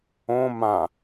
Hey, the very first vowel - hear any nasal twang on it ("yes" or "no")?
yes